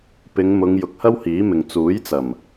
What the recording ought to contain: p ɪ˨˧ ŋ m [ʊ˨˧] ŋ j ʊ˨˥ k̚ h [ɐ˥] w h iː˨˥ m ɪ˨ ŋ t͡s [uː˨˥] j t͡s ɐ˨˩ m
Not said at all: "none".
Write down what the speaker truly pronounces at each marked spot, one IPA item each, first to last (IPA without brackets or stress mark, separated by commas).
ʊ˨˧, ɐ˥, uː˨˥